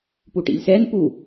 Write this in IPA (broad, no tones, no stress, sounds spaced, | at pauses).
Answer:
p u ʈ ḭ lʲ s ɛ n p u